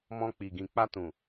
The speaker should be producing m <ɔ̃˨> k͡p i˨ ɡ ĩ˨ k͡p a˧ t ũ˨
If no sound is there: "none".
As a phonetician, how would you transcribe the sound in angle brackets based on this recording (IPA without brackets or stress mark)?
ɔ̃˧